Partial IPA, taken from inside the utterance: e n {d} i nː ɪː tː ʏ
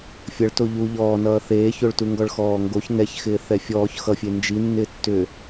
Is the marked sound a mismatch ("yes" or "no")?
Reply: yes